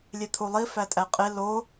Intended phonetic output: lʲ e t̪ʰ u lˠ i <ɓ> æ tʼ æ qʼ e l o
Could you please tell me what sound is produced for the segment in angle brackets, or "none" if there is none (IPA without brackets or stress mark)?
f